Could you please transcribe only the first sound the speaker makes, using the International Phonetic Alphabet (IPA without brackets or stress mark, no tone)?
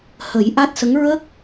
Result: h